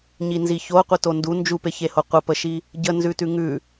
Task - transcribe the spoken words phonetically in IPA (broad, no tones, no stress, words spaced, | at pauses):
ɲinziço qʷitondu nd͡ʒupeçeho qʷəpəʃi | ɟənzʉtʉ ŋʉ